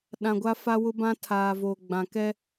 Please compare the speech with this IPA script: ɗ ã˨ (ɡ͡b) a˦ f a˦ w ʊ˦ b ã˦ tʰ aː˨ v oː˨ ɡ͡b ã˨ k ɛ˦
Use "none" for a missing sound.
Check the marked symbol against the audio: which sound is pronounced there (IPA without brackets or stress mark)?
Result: ɡʷ